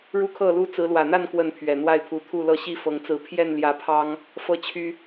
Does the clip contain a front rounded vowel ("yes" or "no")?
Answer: yes